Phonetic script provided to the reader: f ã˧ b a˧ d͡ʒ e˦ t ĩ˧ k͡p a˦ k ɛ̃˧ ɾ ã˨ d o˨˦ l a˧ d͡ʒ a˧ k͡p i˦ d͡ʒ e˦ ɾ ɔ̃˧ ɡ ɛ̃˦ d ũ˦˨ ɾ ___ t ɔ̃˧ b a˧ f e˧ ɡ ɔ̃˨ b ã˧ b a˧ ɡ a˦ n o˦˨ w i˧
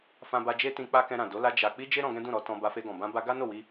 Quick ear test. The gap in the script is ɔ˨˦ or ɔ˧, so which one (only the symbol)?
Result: ɔ˨˦